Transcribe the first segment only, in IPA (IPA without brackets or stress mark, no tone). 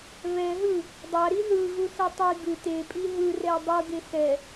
β